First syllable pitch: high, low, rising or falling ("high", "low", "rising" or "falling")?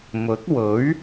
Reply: rising